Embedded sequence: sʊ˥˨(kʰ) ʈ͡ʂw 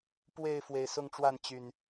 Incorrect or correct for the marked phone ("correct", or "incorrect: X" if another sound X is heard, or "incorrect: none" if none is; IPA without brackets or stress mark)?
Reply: incorrect: ŋ